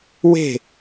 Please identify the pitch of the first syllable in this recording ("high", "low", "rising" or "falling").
falling